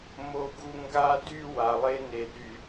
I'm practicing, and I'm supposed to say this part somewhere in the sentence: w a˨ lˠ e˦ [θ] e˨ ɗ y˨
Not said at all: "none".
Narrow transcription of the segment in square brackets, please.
n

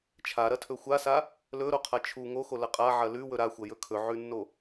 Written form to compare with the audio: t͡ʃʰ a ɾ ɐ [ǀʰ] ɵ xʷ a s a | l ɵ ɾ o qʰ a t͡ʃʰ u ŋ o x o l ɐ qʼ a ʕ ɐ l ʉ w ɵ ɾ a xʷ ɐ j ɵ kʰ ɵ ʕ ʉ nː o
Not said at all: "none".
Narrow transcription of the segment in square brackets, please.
tʰ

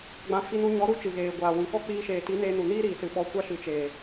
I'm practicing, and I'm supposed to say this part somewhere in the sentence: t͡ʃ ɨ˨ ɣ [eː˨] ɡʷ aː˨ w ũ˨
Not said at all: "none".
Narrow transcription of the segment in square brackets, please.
eː˨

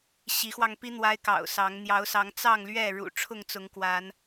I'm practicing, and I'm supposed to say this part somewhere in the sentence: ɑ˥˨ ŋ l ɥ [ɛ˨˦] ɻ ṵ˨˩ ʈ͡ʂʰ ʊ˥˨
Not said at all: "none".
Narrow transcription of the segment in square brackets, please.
ɛ˥˨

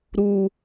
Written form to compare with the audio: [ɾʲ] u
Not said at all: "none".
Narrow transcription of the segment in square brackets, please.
ɾ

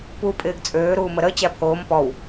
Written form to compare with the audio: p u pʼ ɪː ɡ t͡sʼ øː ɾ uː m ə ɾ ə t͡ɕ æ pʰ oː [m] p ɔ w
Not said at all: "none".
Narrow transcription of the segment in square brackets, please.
m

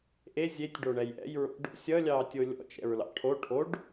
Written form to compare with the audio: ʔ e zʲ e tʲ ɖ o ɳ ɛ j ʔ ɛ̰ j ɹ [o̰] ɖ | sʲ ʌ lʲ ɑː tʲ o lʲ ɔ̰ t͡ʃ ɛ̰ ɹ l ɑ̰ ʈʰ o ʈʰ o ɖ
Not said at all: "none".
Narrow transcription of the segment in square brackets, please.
o̰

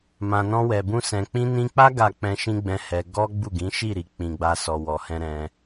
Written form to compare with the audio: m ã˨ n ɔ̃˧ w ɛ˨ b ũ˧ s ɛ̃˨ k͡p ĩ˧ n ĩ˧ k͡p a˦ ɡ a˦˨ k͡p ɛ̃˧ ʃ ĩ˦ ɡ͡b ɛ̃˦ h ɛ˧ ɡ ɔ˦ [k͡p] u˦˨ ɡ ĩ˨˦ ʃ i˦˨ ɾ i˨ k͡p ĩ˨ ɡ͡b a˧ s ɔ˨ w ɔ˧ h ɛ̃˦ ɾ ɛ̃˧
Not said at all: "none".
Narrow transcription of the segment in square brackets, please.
ɡ͡b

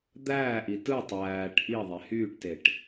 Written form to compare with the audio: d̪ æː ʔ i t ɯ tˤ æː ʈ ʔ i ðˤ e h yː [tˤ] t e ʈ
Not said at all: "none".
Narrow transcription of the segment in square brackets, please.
ʈ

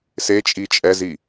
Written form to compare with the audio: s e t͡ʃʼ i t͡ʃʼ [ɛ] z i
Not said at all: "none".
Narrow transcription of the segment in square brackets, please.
ɛ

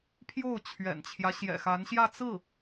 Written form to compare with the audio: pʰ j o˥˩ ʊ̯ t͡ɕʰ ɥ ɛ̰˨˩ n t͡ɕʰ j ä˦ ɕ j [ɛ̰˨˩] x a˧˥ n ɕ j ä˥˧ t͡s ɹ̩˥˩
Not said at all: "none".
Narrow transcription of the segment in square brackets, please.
ɛ̰˨˩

